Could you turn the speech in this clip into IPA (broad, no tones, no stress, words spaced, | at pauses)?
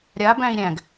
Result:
ɾʲa bæ̃i̯ɾʲæ̃ɡ